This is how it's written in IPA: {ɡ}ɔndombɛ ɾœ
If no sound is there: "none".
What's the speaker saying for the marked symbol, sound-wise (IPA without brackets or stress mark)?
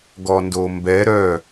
ɡ